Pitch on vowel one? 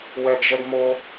low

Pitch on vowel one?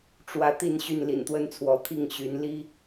rising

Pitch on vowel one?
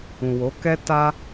low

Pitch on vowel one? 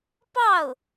falling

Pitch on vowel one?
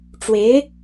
rising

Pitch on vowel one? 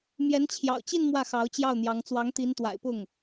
rising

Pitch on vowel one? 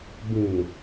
low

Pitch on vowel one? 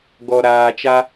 low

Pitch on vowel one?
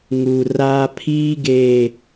low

